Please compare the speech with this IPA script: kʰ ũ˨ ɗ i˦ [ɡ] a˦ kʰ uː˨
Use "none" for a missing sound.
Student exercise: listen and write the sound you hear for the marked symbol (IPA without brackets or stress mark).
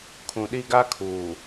ɡ